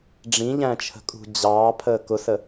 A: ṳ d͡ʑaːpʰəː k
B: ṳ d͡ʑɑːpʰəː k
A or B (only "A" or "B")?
B